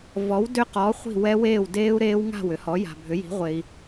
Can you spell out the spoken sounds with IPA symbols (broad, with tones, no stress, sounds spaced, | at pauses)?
v ɔ˩˥ w d ʏ˦˥ q ɔ˩˥ χʷ i̤˥˩ w ɛ˦˥ w eː˥˩ w d eː˦˥ u̯ ɾ eː˦˥ w ŋ a̤˥˩ w ʏ˩˥ h ɔ˩˥ j a̤˨ bʱ ʏ˩˥ j i̤˩˥ ʁʷ e˨ i̯